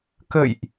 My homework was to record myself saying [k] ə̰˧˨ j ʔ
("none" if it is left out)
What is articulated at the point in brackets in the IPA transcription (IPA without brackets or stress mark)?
k